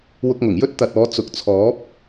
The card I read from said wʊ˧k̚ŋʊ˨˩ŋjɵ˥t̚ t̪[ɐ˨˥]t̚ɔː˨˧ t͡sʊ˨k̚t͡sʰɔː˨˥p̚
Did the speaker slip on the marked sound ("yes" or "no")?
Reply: yes